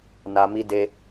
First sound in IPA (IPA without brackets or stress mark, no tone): n